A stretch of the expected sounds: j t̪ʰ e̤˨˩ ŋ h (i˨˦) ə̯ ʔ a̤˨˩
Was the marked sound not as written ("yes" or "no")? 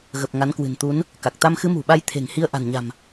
yes